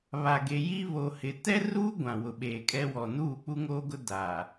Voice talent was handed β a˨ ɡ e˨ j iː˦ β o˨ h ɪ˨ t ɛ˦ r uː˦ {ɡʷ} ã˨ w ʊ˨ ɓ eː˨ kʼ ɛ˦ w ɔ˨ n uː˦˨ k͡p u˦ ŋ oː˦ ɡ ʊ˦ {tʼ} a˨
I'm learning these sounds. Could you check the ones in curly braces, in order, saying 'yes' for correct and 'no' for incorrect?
yes, no

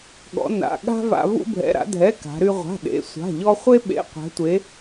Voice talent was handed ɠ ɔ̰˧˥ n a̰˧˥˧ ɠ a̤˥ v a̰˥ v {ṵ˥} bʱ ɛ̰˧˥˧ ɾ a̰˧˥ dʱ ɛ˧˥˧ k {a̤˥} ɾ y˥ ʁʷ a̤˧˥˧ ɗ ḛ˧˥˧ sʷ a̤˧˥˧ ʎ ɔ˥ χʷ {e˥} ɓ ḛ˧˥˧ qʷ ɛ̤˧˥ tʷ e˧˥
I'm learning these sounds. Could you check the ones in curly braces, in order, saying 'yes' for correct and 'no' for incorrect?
yes, no, yes

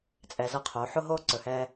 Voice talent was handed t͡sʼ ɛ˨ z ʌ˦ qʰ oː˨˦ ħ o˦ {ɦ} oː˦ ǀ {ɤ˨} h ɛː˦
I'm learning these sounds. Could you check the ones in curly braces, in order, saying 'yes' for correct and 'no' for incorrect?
yes, no

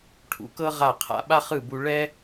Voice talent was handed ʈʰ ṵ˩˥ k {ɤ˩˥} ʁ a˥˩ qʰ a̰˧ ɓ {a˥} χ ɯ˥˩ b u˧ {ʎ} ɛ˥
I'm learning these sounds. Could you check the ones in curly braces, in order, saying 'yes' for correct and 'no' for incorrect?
no, yes, no

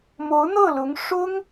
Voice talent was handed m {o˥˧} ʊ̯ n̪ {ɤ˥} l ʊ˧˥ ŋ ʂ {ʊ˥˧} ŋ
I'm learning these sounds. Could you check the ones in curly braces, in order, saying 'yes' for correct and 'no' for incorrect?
no, no, no

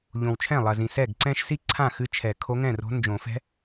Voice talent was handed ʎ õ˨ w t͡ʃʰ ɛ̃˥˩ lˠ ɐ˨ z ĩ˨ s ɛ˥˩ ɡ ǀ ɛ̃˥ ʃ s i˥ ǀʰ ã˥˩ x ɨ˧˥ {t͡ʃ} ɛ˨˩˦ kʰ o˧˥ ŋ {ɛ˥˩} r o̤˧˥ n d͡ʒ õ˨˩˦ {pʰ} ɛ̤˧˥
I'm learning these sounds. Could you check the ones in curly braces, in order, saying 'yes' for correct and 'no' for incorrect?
no, no, no

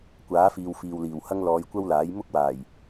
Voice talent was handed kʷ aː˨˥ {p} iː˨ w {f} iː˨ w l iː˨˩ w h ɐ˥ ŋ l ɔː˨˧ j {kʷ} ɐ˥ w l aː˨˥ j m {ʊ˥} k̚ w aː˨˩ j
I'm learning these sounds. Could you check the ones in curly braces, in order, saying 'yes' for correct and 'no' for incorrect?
no, yes, yes, yes

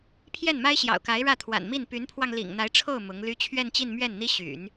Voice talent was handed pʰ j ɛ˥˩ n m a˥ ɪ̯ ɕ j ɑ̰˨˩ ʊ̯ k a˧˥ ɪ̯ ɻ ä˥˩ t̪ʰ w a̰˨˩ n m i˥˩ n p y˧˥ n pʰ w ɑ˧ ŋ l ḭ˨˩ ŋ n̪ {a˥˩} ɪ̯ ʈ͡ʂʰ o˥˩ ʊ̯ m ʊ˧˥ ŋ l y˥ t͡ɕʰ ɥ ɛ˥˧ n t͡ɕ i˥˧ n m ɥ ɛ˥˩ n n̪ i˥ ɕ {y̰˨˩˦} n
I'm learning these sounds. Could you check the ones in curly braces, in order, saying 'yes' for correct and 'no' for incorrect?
no, yes

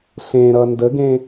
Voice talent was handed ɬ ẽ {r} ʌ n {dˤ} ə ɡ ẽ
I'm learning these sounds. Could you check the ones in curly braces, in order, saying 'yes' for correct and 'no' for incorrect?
no, no

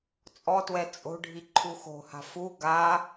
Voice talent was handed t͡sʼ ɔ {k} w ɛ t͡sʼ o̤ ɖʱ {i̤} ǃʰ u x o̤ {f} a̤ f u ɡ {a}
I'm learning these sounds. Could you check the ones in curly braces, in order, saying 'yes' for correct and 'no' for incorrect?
no, no, no, yes

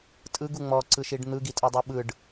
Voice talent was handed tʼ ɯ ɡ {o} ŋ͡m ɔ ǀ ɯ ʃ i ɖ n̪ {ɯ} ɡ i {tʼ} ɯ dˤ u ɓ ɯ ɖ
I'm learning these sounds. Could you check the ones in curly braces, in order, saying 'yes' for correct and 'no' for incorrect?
no, yes, yes

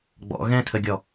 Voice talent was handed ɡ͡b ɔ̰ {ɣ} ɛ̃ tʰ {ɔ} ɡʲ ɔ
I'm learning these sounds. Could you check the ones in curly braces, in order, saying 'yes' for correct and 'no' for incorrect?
yes, no

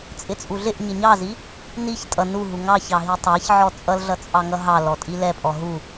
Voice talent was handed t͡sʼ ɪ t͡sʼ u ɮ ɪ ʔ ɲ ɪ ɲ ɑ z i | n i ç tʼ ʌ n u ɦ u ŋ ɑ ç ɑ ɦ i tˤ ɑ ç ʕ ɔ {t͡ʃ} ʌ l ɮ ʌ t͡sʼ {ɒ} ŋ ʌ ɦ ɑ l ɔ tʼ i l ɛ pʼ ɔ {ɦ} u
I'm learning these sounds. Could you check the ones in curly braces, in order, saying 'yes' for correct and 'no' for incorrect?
no, no, yes

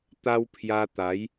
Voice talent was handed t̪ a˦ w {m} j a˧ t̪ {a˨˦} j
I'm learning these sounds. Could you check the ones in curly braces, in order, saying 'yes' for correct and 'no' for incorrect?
no, yes

